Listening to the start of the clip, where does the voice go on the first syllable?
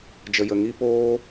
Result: low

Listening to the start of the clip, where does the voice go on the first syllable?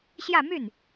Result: falling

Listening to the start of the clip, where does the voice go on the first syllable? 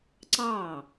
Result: falling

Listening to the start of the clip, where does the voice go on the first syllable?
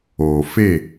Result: low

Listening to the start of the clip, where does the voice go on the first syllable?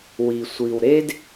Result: low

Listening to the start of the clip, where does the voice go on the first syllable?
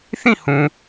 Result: falling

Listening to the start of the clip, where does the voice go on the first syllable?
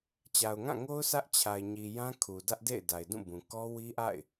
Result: low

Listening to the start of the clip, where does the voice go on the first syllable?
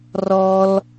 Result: high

